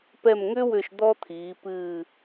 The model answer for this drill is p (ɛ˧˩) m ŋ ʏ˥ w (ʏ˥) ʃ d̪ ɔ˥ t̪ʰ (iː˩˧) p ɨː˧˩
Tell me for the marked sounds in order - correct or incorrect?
correct, incorrect: ʏ˧˩, correct

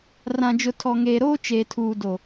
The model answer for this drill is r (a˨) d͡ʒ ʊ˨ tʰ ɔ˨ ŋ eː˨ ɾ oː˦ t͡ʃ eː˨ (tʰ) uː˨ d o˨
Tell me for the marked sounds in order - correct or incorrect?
incorrect: ã˨, correct

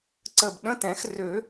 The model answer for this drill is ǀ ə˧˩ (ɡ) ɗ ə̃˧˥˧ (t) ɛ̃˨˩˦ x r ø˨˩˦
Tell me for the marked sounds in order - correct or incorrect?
incorrect: b, correct

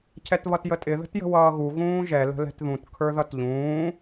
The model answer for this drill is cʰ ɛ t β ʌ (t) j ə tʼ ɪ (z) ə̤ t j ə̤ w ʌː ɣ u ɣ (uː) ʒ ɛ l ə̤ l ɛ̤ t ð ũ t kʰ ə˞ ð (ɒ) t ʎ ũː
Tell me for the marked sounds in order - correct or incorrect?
correct, incorrect: ð, incorrect: ũː, incorrect: ʌ

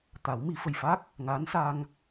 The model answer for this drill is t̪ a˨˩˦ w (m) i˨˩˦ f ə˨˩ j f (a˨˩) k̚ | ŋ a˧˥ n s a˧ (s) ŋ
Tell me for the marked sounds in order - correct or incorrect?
correct, incorrect: a˦˥, incorrect: none

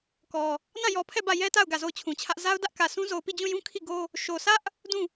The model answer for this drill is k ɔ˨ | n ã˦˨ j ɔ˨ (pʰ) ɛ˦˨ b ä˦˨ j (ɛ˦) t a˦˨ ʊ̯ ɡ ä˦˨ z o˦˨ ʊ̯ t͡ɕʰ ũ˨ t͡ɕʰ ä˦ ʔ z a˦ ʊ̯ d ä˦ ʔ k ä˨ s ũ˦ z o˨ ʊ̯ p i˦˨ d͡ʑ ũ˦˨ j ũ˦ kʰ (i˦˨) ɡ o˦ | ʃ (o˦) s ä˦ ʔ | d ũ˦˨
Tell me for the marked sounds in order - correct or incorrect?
correct, correct, correct, incorrect: o˨

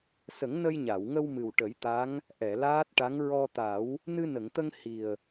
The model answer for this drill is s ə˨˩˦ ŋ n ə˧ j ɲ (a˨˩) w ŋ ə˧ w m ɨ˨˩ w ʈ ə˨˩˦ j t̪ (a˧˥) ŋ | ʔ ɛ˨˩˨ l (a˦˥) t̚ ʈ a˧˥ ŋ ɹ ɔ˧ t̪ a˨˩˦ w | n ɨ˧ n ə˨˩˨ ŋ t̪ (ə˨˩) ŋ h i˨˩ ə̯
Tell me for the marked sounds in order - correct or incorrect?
incorrect: a˨˩˨, correct, incorrect: aː˦˥, incorrect: ə˧

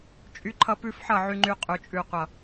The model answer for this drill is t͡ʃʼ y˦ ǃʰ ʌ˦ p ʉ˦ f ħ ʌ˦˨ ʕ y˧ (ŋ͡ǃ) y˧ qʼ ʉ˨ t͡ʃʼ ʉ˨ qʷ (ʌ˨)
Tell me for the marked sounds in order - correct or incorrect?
correct, correct

